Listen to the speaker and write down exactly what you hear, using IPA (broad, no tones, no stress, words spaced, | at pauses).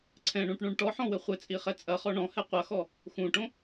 ǀʰɛ̃ɳũʈɳũɳ ʈɔħɔ̃wɘ χʷɘt͡sʼiχɛ t͡sʼɐχɔ ɳɔ̃hɛ qʷɐxɔ | xũʈõ